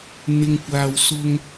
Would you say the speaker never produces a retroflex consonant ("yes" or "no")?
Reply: yes